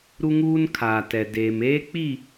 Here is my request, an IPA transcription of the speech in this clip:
ɾ u˦ ŋ uː˦ n kʰ aː˨ t ɛ˨ d eː˨ m eː˦ k͡p i˦˨

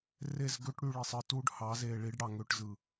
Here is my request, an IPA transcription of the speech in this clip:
r e˦˨ z ɡ ø˦ ʈ ɽ y˧ ɭ i˨ sˤ ɯ˧ t u˦ ɖ h ɑ˨˦ z e˨ ɭ i˨˦ ɖ ɽ ɑ˨ ŋ ø˧ ʈ z ɯ˨

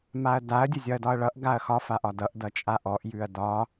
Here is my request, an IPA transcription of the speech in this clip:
m a ɐ̯ d a ɐ̯ dʲ ə zʲ ɒ ɐ̯ d ɒ ɐ̯ ɭ ʌ ʔ ɡ a ɐ̯ x ɒ f a ʔ ɒ d ʌ ʔ d ʌ t͡ʃʼ a ʔ ɔ ʔ j ʉ ɐ̯ d ɒ

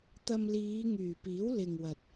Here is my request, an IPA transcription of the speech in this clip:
t̪ ɐ˧ m l iː˨˧ ŋ yː˨˩ p iː˨˥ w l ɪ˨ ŋ w ɐ˨ t̚

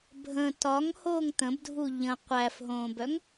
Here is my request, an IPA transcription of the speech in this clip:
bʱ ə̃ t ɒ ŋ h oː ŋ t̪ ə̃ b dʱ u ʎ ə̃ qʷ æ f ɦ õː b œ ŋ

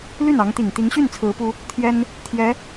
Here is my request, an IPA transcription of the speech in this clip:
l y˥˩ n ɑ˧˥ ŋ t̪ i˨˩ ŋ t̪ i˧˥ ŋ ɕ y˥˩ n t͡sʰ ɹ̩˧˥ p u˥ | t̪ʰ j ɛ˥ n | t̪ʰ j ɛ˧˥

